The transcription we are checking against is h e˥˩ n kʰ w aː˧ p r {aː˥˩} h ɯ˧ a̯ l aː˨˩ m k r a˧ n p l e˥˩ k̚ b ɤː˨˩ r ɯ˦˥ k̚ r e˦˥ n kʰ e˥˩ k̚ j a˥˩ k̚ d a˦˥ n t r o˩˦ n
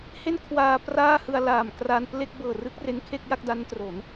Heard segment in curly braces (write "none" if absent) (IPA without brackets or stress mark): aː˥˩